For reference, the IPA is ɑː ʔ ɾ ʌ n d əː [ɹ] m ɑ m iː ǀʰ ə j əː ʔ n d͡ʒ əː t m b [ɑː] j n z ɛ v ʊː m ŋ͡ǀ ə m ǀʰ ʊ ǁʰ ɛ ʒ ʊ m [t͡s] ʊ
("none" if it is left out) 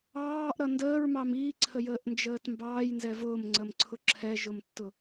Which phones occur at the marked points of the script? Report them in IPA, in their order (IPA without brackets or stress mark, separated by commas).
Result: ɹ, ɑː, tː